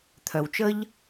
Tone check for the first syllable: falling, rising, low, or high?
low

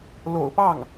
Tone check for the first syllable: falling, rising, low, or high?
low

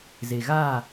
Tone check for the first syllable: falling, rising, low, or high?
low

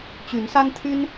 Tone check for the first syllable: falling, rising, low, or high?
rising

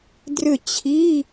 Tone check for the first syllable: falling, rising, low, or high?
falling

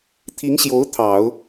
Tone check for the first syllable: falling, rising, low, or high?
rising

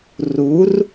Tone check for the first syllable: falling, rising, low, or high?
rising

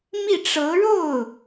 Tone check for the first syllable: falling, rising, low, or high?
falling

